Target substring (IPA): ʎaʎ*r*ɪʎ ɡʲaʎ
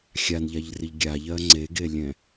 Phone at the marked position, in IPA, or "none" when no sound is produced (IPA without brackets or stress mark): r